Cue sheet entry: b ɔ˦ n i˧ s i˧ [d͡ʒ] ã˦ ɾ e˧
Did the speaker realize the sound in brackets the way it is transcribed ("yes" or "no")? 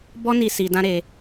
no